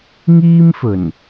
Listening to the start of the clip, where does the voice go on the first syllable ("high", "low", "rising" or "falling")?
high